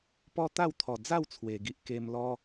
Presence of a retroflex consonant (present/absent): absent